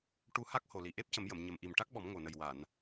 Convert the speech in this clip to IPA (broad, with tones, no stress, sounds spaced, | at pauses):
ʈ u˧ h a˦˥ k̚ h o˨˩ l i˨˩ ʔ e˦˥ p̚ c ə˨˩˦ m j ə˨˩˨ m ɲ ə˨˩ m ʔ i˨˩ m ʈ a˦˥ k̚ ɓ ɔ˨˩˦ m ŋ o˨˩ n ə˨˩ j w a˨˩˨ n